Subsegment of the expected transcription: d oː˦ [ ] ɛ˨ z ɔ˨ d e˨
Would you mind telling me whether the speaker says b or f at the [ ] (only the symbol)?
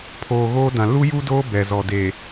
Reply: b